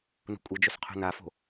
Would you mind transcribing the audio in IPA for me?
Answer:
n ṳ kʷʼ ɨ d͡ʒ ɵ s qʰ ṳ n a f o̤

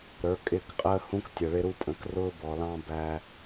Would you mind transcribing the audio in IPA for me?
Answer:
ɾ ə˞˨˦ kʼ ɪ˦˨ k qʼ əː˦ h ũ˦ k tʲ ʌ˨ ɭ ɪ˦ ɾ u˦ pʼ ə̃˨˦ k r ʊː˦ b ɔ˨ l ɑ̃˦ b æ˦

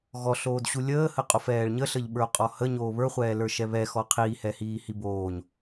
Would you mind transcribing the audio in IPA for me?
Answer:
ɣ ɔ ɬ oː d ɕ u lʲ əː h ə qʼ o f ɛː ɭ ɲ ə ɬ ə ʎ ɓ ə˞ o̯ qʼ ɔ h ə ɲ oː β ə˞ χʷ ɛː l ə˞ ʃ ɛ β ɛ x ɔ qʰ iː h ɛ h iː h i b oː ɲ

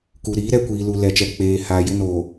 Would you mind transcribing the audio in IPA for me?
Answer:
k u˨ ɾ iː˨˦ ɾ ɛ˦˨ kʷ iː˨ l u˨ l ɛ˨ t͡ʃ ɛ˨ k͡p eː˨ h aː˨ j ɪ˦ n o˨

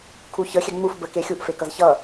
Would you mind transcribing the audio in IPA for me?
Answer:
kʰ u ç ə xʲ ɛ ŋ͡m u f b ə k e xʲ u ʔ f e k ʌ z ç ʌ

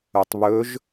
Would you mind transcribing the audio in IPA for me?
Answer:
œ tˤ β ɵ ʒ

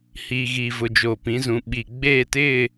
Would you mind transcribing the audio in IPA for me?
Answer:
h iː˨ ɣ iː˨ v ʊ˨ d͡ʒ oː˨ p ĩ˨˦ z ũ˨ ɓ i˨ ɡ͡b eː˦˨ t ɪ˦˨

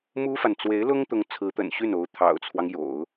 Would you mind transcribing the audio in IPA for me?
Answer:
m u˥ f a˨ n t͡s w e˧˥ ɪ̯ l ʊ˥ ŋ t̪ ʊ˧˥ ŋ t͡sʰ ɹ̩˧˥ t̪ ə̰˨˩ n ɕ y˥˩ n o˧˥ ʊ̯ t̪ʰ ɑ̰˨˩ ʊ̯ t͡sʰ w ɑ˦ ŋ j o̰˨˩˦ ʊ̯

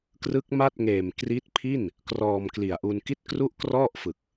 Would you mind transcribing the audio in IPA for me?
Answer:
k r ɯ˦˥ k̚ m a˥˩ t̚ ŋ eː˨˩ m k r i˦˥ t̚ pʰ i˥˩ n | k r ɔː˧ m k l i˨˩ a̯ ʔ u˧ n k i˥˩ t̚ k r u˥˩ ʔ k r ɔ˥˩ ʔ f ɯ˨˩ k̚

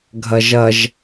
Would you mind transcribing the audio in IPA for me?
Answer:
ɡʱ ʌ ʒ ʌ ʒ

